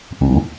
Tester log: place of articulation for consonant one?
glottal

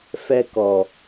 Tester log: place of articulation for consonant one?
labial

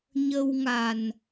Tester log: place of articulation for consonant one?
palatal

